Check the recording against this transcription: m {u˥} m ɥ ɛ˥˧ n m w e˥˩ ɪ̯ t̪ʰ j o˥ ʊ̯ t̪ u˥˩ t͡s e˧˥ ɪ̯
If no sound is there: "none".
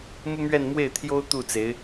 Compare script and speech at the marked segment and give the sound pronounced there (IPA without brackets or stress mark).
u˥